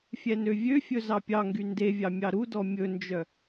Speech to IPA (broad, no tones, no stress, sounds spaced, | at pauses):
fʲ ɛ n ø vʲ ø fʲ ɵ z ɑ pʲ ɑ ŋ ɡ y n d e vʲ ɑ mʲ ɑ ɾ u d ɔ mʲ ɵ n d͡ʒ œ